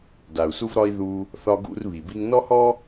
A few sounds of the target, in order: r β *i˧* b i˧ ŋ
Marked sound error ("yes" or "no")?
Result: yes